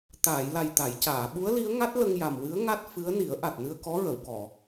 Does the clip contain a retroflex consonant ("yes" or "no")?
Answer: no